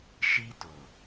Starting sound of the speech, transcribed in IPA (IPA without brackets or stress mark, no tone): ʃ